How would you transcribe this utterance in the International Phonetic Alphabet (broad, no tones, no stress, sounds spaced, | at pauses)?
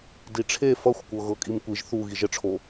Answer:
d i ʈ͡ʂʰ e f ʌ xʷ kʷ ɤ ɣ ɤ kʼ i m kʷ i ʒ θ u ɣ i ʒ ə ʈ͡ʂʰ o